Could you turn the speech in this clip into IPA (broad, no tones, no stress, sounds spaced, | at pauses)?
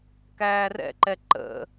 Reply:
k æː r ɛ̰ ǃ ɛ ǃ ə̰